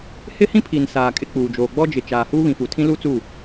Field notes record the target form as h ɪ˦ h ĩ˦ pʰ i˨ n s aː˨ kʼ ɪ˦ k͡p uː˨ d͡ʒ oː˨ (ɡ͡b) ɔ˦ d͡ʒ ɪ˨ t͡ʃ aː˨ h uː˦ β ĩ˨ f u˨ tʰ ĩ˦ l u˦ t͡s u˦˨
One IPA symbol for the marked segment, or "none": ɡ͡b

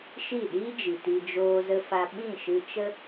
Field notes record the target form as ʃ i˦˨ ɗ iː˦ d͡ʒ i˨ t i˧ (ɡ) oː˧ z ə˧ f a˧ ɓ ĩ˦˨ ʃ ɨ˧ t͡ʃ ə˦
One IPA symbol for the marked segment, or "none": d͡ʒ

